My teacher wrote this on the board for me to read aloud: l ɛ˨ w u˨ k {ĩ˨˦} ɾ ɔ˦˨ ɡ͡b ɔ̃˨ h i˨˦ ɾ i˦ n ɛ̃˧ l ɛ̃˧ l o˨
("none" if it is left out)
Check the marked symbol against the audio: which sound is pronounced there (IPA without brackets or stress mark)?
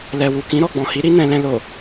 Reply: ĩ˨˦